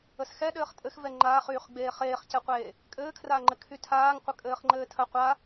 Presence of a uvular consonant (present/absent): present